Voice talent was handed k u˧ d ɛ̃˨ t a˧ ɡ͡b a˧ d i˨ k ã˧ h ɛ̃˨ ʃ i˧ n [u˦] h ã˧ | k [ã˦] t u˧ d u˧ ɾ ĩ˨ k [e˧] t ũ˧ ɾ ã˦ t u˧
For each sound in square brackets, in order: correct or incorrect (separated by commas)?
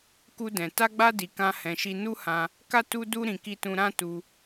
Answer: correct, incorrect, incorrect